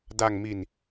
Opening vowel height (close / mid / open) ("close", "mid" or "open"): open